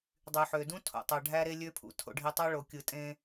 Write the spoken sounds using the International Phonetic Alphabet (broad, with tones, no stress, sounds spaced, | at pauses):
dˤ y˨ ħ ø˨ d ũ˦ tʰ o̰˨ tˤ ɑ˨ ɖʱ æ˦ ɾ e˦ lʲ ø˦ pʰ ṵ˨ tʰ o̰˨ ɖʱ i˨ tˤ ɑ˦ ɭ o˨ kʲ ɯ˨ tʼ ẽ˦